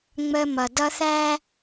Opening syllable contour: high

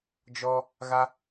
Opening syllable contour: high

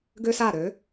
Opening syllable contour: high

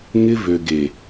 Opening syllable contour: high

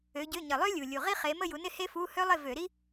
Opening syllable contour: rising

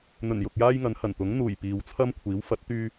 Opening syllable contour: low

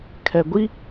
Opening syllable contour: low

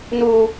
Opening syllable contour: high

